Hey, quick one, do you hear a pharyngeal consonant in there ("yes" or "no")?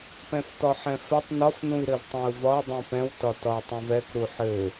yes